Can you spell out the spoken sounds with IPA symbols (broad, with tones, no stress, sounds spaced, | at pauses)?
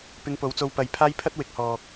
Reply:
p ɪ˧ ŋ p o˨˥ w t͡s o˧ w p ɐ˨˧ j pʰ aː˥ j pʰ ɐ˥ t̚ w ɪ˨˥ k̚ h ɔː˨ k̚